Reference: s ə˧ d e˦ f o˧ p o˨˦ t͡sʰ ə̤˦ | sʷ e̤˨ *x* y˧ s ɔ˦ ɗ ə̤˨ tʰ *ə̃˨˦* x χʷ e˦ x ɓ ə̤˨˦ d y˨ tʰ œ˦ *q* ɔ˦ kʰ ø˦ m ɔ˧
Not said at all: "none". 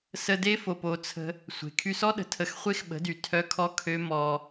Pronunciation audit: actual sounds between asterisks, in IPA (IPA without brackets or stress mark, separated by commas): kʰ, ə˨˦, kʰ